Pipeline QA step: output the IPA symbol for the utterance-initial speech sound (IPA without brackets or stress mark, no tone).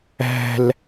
æ̤